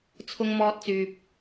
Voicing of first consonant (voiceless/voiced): voiceless